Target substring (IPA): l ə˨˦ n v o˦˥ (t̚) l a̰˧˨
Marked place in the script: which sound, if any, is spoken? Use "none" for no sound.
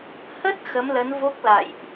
k̚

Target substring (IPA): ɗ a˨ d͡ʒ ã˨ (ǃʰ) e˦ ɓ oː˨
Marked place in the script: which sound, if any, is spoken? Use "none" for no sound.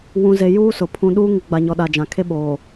kʰ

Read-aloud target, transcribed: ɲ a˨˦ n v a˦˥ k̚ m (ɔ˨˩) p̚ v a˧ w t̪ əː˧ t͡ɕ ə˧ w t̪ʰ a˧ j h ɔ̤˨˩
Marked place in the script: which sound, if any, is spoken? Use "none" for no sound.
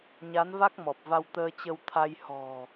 ɔ˨˩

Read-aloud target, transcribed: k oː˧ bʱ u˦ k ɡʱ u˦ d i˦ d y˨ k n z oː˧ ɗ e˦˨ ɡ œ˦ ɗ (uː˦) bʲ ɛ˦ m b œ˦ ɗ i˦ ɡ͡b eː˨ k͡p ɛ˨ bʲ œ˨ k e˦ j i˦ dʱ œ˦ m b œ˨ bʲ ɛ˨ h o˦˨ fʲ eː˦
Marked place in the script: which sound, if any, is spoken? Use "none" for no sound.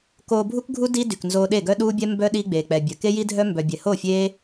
uː˦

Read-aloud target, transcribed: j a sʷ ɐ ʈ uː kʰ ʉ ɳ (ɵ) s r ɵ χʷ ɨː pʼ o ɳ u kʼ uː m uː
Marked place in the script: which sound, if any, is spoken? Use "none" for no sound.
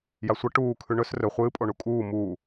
ɵ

